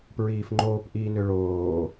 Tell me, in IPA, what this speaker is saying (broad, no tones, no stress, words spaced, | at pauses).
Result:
pɹiːfŋ͡ǃoːp ʔiːnøɭoː